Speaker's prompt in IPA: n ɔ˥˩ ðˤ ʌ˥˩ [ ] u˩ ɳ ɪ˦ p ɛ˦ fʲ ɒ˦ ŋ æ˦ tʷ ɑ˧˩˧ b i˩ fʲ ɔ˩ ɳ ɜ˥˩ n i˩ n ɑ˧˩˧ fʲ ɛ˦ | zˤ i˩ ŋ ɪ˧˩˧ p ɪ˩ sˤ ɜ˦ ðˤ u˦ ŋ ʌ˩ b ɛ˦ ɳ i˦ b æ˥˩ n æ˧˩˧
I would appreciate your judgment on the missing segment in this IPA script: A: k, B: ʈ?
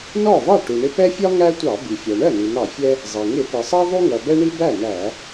B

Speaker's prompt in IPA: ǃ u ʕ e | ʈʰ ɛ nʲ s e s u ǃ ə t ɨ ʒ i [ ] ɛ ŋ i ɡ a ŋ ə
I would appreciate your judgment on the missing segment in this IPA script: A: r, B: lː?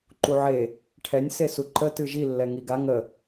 B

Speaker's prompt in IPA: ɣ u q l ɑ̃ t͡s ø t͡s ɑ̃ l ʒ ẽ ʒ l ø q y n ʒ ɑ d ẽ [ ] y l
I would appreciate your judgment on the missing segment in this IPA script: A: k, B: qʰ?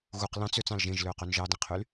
B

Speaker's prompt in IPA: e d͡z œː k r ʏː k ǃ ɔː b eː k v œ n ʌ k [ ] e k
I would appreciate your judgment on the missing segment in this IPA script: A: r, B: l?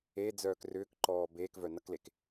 B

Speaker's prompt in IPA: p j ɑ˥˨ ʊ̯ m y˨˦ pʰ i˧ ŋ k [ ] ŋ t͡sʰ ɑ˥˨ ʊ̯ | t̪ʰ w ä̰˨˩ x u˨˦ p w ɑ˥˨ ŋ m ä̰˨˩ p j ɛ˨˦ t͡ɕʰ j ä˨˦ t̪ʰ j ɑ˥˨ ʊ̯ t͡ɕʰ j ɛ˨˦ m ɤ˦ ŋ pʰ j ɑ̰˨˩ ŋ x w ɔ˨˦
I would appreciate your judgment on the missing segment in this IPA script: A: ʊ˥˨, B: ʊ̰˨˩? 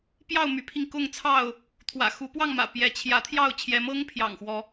A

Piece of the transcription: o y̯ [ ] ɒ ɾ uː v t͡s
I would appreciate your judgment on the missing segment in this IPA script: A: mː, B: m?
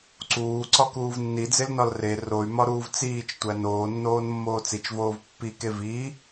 B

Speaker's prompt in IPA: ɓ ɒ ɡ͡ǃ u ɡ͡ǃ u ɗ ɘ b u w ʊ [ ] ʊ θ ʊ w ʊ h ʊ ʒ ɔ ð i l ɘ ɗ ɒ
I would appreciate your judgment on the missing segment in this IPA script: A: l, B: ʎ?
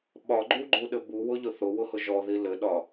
B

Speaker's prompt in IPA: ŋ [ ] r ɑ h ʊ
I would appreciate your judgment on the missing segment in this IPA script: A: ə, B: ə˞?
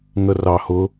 A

